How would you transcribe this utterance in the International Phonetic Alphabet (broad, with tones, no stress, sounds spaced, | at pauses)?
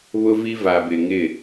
β ʊ˦ v i˦ v a˨ b ɪ˨ ŋ ɪ˦˨